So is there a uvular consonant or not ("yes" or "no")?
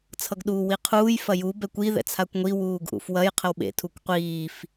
yes